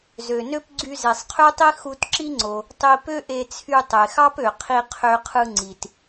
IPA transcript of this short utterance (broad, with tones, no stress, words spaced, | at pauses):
zø˩nø˥p ɡ͡ǀy˧ze˩sˤqʰø˥tˤi˥ xu˧tǁi˥ŋ͡ǀo˩ | tˤi˧ pø˥ʔe˧t͡sʰy˧ tˤe˩xɑ˥pø˩ qʰi˧qʰø˧qʰɯ˧ ŋ͡ǀi˩t